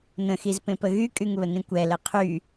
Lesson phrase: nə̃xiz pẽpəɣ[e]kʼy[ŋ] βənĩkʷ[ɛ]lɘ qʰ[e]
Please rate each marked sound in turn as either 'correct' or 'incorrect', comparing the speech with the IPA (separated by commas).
incorrect, correct, correct, incorrect